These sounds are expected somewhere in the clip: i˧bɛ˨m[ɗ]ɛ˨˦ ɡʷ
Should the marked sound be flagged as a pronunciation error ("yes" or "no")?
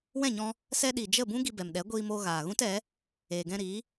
no